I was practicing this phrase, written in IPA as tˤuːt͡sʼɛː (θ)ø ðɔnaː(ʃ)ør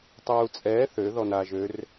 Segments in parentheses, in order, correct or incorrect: correct, incorrect

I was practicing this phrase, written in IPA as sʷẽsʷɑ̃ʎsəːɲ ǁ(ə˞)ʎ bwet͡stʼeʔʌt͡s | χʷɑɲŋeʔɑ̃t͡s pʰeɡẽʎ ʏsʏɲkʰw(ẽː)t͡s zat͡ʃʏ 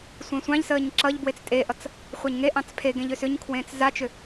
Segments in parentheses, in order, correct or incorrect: incorrect, correct

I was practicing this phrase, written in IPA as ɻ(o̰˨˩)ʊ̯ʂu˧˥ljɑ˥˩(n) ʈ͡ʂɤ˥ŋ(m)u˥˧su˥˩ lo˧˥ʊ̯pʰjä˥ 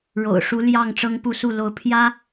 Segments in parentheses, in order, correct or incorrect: correct, incorrect, incorrect

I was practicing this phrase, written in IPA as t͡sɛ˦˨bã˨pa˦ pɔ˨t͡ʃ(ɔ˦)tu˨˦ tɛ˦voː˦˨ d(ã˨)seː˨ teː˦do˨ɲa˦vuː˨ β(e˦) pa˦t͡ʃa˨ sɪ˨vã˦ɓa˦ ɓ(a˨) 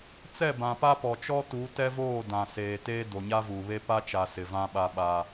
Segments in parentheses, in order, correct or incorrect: correct, correct, correct, incorrect

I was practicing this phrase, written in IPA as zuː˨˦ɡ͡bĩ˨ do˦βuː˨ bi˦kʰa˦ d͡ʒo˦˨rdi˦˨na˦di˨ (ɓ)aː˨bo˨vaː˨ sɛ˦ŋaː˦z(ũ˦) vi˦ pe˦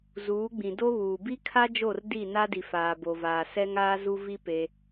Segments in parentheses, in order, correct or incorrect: incorrect, incorrect

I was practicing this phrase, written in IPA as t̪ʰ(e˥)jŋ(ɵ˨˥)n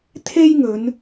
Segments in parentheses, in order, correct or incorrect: correct, incorrect

